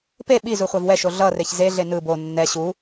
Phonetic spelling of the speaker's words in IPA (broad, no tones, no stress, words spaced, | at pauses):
pe ɓi zuχʷavwɛʃo ɮʌreç zeɮe nɯ bo nːɛ ɕu